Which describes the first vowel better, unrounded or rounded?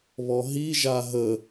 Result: rounded